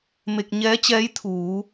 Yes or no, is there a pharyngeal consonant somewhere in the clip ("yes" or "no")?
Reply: no